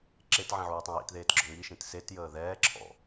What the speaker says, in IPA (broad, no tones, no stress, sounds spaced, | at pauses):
ǁ e t ʕ ĩ ʕ uː tˤ ɛ̃ j ḭ t ð eː t ɡ͡ǁ ɔ ŋ i ʃ ĩ t s e t j əː ð ɛː ǁʰ ɔ̰